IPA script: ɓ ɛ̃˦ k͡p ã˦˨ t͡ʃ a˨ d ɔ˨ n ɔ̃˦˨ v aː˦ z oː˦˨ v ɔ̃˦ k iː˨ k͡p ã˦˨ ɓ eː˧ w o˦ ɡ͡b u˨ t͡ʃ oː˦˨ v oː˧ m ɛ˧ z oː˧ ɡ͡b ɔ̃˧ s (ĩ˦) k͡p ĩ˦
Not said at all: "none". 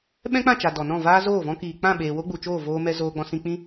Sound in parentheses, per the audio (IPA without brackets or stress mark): ĩ˧